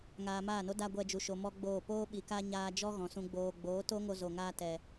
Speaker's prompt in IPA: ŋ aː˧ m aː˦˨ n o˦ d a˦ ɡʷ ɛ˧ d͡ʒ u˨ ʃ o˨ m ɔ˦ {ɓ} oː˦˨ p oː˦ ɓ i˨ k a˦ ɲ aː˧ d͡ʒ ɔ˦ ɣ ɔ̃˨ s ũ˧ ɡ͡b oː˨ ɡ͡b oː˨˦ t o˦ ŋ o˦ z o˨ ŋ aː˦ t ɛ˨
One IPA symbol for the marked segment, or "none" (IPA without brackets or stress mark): ɡ͡b